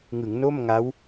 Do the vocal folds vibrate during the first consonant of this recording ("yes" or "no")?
yes